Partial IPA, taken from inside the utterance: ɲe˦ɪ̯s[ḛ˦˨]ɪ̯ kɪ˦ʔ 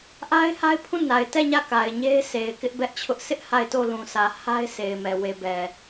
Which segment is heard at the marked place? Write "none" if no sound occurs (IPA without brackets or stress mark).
e˨